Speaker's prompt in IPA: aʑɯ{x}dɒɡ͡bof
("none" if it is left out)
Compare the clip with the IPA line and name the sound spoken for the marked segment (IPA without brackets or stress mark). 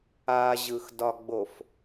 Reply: x